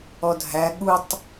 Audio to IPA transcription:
ɔ dʱ æ ɠ u tˤ

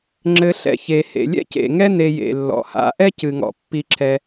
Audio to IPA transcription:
ŋ͡ǁ ɘ˨ ɬ ɛ̰˨ ç e˩ h ḛ˩ lʲ ɛ̰˥ c ḛ˩ ŋ ɛ˥ n e˨ j ḛ˩ lː ɔ̰˩ h a̰˨ ʔ ɛ˥ c ɨ˩ ŋ ɔ̰˩ pː i˨ ǁʰ ɛ˨

